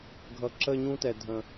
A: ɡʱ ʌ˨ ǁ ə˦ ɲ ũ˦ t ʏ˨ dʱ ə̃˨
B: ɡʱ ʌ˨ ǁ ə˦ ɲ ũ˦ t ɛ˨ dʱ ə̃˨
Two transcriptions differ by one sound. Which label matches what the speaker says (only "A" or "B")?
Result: B